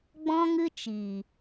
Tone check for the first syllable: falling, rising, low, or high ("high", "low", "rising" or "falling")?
high